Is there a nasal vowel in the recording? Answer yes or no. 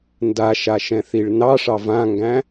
yes